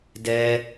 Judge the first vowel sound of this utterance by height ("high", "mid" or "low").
mid